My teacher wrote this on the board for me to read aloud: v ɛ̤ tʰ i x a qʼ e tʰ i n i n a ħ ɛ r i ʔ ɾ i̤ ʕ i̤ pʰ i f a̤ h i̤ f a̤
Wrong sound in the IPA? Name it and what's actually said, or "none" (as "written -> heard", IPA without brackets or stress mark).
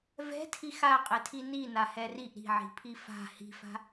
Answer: ħ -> h